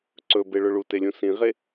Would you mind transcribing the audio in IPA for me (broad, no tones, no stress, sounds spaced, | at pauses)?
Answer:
ǀ ɵ b e ɭ ɵ ɭ u t e lʲ ũ s ĩ ʁ e